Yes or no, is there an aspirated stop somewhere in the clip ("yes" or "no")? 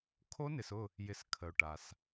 yes